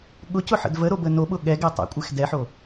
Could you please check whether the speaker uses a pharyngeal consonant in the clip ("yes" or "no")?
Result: yes